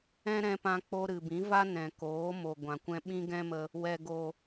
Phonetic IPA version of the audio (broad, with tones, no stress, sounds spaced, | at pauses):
ɛ̃˦ ɾ ɛ̃˧ p ã˧ k͡p o˧ ɾ ɨ˨ b ĩ˨˦ v a˦ n ɛ̃˨ k oː˨˦ m o˨ ɡʷ ã˨ kʷ ɛ̃˧ ɓ ĩ˦ ɡ ɛ̃˦ m ə˧ | w ɛ˨ ɡ o˨